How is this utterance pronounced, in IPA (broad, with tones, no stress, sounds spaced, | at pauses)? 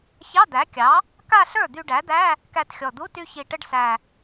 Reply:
ç ɑ˧˥˧ d̪ æ˩˥ kʲ ɑ˩˥ | k a˥˧ ɬ ə˞˥˩ d̪ y˧ ɖ æ˩˥ d̪ æ˧˥˧ | k æ˧ t xʲ ɔ˨˩ d̪ u˧˥˧ t y˧ ç i˨˩ ʈ ə˧ ɖ s æ˨˩